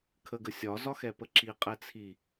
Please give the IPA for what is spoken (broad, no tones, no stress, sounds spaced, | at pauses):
kʰ ə ɡ ə sʲ ɒ z ɒ x ɛ p ə ǁ i qʼ ɛ t͡sʰ i